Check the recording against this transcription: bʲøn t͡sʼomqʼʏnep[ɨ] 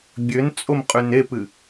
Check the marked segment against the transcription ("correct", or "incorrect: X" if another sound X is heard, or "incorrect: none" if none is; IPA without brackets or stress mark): correct